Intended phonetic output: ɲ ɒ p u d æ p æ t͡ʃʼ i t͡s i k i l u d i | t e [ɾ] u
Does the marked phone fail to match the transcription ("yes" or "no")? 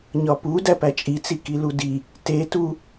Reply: yes